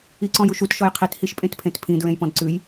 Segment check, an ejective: present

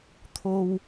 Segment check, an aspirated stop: present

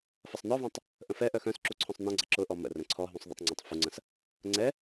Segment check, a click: present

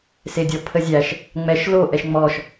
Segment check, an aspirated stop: present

